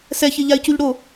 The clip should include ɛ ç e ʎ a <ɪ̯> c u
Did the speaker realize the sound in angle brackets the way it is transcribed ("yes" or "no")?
yes